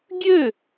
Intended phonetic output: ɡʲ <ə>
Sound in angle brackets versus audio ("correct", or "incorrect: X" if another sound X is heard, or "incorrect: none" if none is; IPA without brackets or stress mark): incorrect: ø